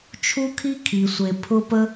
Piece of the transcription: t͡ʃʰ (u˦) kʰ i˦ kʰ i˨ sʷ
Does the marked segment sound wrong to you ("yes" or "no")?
no